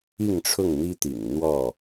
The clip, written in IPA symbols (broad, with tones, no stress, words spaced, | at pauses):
i˥˨ŋʈ͡ʂʰʊ˥˨ŋ n̪i˦t̪ḭ˨˩ŋn̪wɔ˥˨